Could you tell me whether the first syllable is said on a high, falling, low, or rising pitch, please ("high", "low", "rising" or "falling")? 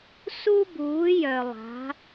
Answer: high